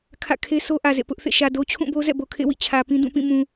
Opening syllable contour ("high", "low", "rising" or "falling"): falling